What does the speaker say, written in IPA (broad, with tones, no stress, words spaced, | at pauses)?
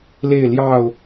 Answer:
le˥˨ɪ̯ljɑ˥˨ʊ̯